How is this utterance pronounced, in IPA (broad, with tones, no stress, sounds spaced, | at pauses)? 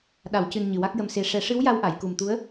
ɗ a˨˩˨ w c ɨ˨˩ n ɲ ɨ˨˩ w a˦˥ k̚ j ə˧ m s e˧˥ ʂ ɛ˨˩˦ ʂ ɨ˧˥ w j a˧ w ʔ a˨˩˨ j k u˨˩ m t̪ u˧˥ ə̯